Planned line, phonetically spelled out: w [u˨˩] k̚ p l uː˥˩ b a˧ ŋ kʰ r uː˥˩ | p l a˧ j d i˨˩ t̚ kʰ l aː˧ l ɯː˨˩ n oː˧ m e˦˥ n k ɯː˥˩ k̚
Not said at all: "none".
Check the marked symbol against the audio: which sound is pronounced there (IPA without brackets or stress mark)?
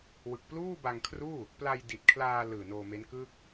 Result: ɯ˨˩